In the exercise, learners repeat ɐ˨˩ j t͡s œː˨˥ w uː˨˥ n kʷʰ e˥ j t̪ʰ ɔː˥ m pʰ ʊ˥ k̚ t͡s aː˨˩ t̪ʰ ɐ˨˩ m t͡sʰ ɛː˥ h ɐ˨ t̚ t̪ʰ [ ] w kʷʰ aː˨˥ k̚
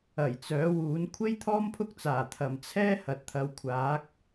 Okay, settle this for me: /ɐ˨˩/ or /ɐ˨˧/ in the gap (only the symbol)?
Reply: ɐ˨˧